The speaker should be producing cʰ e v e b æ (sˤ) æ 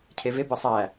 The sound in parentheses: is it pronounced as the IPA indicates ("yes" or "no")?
yes